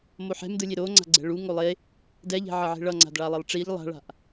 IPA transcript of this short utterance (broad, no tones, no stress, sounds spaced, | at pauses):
m o ħ ɛ̤ m d ɯ lʲ e ɾ o ŋ͡ǀ a̤ ɡ͡ǀ ɛ̤ ɭ u ŋ o lˠ e | d ɛ ʎ ɛ̤ ʕ ʌ ʕ e̤ ɭ ʌ ŋ͡ǀ a̤ d ɭ a lˠ e lˠ ʈ͡ʂ i ʎ lˠ a̤ ɭ a̤ ʔ